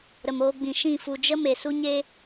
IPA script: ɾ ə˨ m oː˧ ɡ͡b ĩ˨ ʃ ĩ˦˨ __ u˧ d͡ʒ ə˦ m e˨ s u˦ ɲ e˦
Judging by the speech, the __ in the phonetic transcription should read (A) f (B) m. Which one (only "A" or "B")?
A